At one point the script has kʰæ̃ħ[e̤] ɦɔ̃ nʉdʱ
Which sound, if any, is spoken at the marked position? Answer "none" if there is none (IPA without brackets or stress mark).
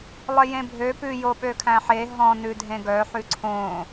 e